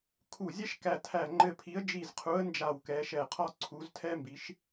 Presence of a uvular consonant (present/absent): present